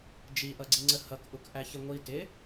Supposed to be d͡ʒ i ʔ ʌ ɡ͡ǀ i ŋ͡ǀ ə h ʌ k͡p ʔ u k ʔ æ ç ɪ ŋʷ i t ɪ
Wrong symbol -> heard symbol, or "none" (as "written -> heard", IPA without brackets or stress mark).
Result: k͡p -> k